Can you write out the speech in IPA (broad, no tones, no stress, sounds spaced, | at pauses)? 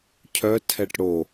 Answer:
cʰ œ tʰ ɛ ʈ ɽ o